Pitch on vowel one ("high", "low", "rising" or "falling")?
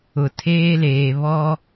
low